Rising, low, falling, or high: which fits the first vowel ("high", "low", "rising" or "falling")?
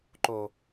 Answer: low